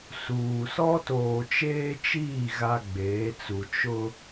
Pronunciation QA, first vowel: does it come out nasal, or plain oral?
oral